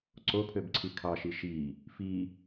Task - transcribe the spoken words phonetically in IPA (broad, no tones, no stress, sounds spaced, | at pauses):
ǀ o pʰ ø b ǀʰ i kʰ ɑ ʃ i ʃ i | f i